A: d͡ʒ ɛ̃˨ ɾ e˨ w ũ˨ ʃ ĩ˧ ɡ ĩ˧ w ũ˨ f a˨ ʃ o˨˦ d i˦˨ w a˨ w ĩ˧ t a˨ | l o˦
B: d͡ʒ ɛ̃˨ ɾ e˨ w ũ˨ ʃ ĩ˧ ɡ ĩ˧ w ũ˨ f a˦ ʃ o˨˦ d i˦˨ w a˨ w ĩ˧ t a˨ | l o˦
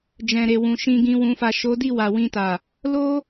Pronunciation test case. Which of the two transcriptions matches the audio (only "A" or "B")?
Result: A